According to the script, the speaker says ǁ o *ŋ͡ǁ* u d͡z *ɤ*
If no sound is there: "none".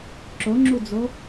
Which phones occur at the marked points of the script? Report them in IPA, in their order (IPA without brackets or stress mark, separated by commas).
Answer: ŋ͡ǁ, o